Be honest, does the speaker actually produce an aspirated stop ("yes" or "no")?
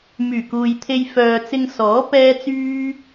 yes